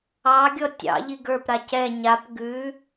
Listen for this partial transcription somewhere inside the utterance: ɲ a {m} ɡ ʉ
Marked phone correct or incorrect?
incorrect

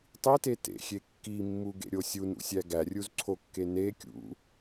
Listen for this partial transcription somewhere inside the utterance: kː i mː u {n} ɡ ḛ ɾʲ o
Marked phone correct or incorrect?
incorrect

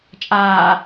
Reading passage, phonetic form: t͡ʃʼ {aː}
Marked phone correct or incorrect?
correct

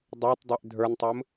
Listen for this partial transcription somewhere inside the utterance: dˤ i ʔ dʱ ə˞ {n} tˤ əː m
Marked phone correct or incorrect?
correct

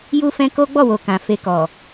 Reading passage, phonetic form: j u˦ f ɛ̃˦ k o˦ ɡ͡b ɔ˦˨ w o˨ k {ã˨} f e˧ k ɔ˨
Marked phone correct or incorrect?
correct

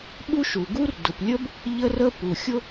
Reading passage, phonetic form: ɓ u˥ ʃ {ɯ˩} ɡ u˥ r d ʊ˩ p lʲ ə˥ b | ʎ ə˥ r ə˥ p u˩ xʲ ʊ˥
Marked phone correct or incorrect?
incorrect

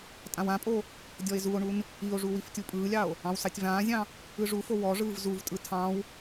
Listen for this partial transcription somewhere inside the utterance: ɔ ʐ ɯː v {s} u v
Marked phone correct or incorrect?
incorrect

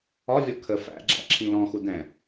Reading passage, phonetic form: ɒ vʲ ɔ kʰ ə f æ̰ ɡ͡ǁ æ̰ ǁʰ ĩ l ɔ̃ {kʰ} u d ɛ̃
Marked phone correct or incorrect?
incorrect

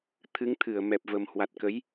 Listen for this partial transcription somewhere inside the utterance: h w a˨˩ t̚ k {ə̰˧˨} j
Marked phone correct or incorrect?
incorrect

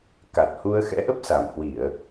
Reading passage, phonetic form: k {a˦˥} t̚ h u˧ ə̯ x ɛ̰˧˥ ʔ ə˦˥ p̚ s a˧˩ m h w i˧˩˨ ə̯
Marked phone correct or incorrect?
incorrect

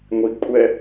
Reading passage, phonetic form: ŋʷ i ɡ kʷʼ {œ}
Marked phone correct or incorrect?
incorrect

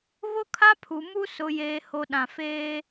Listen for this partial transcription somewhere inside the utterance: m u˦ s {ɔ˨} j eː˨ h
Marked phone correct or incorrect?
incorrect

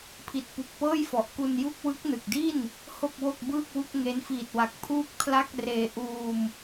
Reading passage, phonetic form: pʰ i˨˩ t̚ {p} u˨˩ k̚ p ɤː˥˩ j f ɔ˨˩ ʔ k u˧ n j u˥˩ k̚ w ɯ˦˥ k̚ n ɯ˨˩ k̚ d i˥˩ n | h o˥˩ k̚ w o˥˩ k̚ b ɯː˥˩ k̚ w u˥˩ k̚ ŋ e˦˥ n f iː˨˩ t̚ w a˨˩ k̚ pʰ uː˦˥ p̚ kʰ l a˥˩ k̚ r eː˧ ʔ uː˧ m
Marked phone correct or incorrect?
correct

